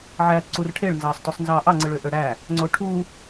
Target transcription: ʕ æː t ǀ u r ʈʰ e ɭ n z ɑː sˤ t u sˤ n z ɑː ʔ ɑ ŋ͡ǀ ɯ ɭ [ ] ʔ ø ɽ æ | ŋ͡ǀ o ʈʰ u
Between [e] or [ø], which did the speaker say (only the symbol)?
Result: ø